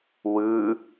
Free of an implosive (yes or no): yes